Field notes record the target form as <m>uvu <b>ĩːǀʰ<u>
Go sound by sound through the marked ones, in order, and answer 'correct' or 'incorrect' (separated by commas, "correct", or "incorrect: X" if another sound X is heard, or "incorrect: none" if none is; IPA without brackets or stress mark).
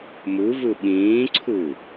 correct, incorrect: ɓ, correct